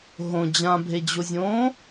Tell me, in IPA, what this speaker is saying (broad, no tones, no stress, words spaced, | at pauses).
ɦõ d͡ʑãbʱed͡ʑozʲõː